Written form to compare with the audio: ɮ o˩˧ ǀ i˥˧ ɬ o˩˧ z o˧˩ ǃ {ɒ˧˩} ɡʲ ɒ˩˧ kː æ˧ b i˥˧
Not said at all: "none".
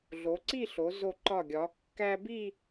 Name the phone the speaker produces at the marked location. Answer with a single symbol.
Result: ɒ˧˩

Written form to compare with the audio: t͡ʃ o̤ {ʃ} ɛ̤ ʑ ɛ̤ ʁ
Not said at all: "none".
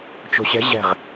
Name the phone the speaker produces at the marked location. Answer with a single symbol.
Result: ɕ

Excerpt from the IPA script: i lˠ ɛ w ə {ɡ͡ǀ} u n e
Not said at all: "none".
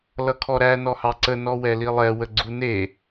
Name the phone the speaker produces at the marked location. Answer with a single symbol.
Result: ɡ͡ǀ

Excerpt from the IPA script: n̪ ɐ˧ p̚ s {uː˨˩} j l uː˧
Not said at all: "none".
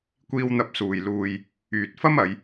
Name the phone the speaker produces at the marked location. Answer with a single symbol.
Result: uː˨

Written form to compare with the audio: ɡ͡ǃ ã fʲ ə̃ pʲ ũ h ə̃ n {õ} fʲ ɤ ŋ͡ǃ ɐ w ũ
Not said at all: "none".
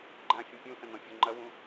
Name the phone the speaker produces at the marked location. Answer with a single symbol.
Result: ɔ̃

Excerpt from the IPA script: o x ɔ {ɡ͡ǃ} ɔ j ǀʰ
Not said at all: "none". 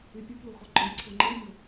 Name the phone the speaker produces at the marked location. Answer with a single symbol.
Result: ɡ͡ǃ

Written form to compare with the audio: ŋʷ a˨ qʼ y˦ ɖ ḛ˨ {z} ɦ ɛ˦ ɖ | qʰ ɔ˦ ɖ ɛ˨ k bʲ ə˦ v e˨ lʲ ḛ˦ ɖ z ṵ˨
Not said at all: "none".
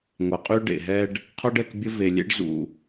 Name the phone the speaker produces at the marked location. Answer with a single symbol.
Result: none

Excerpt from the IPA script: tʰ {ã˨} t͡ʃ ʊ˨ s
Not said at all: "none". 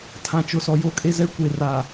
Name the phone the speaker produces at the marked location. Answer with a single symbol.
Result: ã˨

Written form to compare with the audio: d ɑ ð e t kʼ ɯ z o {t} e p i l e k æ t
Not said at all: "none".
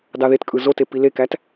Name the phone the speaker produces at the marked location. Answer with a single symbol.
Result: t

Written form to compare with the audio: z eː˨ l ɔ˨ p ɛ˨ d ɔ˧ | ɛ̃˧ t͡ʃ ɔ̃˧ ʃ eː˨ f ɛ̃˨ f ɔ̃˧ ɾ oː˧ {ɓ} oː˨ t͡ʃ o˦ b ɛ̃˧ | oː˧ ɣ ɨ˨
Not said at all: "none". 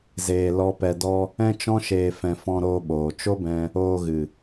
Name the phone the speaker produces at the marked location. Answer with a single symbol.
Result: ɓ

